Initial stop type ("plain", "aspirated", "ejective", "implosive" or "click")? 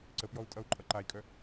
click